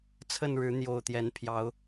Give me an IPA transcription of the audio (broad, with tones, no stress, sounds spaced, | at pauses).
t͡sʰ ə˥˨ n ɻ ɻ̩˨˦ n̪ j o˨˩ ʊ̯ t̪ j ɛ˨˦ n pʰ j ɑ˨˦ ʊ̯